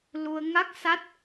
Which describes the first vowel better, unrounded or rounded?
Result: rounded